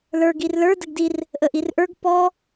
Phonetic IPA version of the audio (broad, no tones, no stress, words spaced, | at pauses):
lə˞ɡ irlə˞ dəɡdir | ʔəʔirʔə˞ɡ pɔ